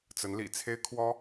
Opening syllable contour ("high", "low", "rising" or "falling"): rising